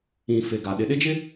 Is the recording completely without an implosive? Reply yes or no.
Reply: no